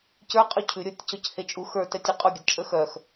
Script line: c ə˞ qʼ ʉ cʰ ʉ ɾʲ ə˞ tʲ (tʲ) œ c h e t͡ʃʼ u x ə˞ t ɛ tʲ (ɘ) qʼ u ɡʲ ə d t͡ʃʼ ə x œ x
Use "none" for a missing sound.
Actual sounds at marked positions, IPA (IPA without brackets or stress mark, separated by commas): c, ʉ